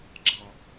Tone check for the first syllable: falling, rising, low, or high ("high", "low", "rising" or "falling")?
low